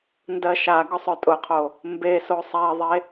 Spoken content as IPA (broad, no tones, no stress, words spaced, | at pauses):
ndɜʃa ɡʊsˤœtʼʊqʰo | mbeso sˤɛðˤe